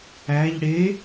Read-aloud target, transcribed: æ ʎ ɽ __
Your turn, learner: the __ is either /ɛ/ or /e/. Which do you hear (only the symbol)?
e